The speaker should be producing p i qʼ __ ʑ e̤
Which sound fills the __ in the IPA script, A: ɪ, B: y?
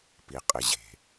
A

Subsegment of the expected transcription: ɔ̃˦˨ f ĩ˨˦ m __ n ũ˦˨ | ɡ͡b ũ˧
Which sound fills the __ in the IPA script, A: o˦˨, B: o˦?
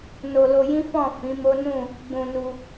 B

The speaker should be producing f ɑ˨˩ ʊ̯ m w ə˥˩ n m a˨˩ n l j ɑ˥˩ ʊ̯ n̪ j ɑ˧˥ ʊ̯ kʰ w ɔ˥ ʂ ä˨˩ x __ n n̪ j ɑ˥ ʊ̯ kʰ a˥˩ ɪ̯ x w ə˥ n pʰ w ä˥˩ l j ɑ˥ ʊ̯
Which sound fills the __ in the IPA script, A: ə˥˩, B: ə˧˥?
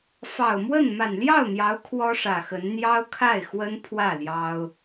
B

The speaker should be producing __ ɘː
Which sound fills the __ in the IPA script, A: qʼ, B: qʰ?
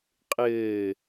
A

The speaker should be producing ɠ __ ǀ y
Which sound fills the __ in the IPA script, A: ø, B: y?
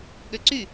A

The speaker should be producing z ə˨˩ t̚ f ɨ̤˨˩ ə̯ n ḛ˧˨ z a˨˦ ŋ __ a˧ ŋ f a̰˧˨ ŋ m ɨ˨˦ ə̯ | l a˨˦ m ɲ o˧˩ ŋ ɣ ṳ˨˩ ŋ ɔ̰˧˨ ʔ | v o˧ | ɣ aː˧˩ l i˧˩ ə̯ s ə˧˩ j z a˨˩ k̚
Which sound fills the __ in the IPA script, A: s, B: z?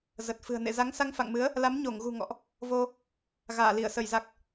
A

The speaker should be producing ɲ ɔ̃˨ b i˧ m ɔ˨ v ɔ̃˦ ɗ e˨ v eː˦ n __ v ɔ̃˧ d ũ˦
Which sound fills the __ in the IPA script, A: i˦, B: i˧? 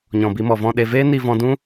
B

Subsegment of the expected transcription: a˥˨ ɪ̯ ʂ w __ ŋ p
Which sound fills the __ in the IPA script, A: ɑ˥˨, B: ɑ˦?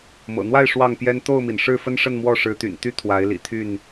A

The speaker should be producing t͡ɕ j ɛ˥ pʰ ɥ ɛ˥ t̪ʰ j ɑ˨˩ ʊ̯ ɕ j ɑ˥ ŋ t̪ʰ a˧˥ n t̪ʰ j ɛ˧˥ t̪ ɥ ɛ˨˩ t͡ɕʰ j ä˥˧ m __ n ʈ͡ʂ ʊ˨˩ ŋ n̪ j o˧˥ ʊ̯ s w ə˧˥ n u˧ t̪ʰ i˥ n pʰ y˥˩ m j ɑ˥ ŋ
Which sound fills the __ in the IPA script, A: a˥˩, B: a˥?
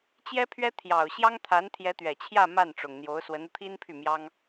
A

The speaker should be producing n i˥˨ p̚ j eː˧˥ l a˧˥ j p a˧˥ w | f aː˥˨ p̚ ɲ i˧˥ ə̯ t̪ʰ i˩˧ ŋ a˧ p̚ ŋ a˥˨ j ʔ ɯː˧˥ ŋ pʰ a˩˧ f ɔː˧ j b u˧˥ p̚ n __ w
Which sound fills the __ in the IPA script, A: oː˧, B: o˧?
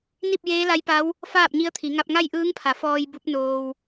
A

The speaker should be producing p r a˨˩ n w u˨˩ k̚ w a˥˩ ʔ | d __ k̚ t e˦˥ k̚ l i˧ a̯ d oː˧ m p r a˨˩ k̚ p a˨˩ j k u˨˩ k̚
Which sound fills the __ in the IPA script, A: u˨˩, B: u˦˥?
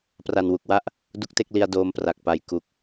B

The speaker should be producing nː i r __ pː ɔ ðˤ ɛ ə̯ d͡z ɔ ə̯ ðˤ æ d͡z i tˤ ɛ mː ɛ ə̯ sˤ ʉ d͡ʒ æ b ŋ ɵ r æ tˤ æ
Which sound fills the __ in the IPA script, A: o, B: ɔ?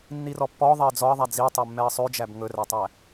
B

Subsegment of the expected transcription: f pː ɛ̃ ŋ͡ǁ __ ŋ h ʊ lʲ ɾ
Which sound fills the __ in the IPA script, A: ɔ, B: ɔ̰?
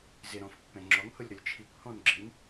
A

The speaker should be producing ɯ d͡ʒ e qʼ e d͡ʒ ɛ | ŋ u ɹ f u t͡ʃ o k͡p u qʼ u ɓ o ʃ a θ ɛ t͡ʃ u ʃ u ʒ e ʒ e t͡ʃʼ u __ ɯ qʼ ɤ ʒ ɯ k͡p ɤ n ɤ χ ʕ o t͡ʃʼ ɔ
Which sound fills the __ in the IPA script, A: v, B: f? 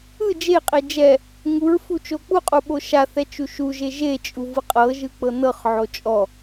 A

